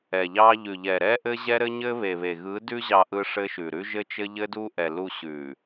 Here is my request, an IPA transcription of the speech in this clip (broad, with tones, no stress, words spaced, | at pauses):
ɛ˨ʎɑ˦ ʎʉ˨ʎɛ˨ɾɛ˦ ʔɘ˦ʑɛ˦ ɾɘ˦ɲɘ˦βe˨βe˨ ɣɯ˨˦dʉ˦ ʑɑ˦ʔɯ˦ ʂɘ˦ʃʉ˨ ɾʉ˦ʒɘ˦t͡ʃɘ˦ ʎɘ˦du˦ʔɛ˨lu˦˨ ɕʉ˨